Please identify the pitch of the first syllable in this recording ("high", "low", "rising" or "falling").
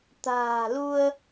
low